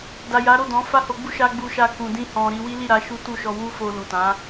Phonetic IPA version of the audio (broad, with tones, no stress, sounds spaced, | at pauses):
d a˨ j a˨˦ ɾ o˦˨ d ɔ̃˨˦ f a˦ h o˧ ɡ͡b u˦ ʃ a˧ ɡ͡b u˧ ʃ a˧ k ũ˨ d ĩ˧ h ɔ̃˨ ɾ i˧ w i˦ l i˦˨ ɾ a˧ ʃ u˦ t u˦˨ ʃ ɔ˧ w u˦ f o˧ l u˨ t ã˨˦